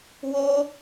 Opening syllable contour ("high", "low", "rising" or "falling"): high